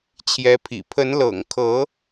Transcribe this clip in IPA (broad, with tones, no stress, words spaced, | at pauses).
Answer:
t͡ɕʰjɛ˧˥pʰḭ˨˩ pʰə˧˥nlɤ̰˨˩ŋkʰɤ˧˥